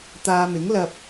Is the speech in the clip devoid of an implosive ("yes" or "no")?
yes